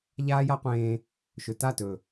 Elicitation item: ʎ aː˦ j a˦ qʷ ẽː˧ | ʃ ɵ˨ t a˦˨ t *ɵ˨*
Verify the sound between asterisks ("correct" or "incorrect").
correct